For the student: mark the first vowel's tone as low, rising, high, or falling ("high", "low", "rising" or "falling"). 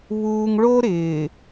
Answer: high